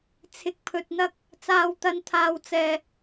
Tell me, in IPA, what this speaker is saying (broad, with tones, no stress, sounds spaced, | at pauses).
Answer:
t͡sʰ ɪ˧ k̚ pʰ ɵ˧ t̚ n̪ ɐ˥ k̚ | t͡s aː˥ w t̪ ɐ˥ n t̪ʰ aː˧ w t͡s ɛː˧